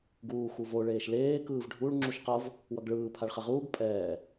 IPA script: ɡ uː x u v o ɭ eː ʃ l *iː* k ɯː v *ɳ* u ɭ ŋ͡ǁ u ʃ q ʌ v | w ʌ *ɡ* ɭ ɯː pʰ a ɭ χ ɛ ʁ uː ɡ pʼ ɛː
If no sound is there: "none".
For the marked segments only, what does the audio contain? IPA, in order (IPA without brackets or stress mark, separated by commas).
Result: eː, ɖʱ, ɡ